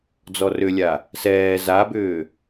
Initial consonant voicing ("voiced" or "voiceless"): voiced